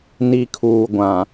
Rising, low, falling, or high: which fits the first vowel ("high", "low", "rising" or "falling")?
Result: low